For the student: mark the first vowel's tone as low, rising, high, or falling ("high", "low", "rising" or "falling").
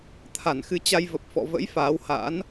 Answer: low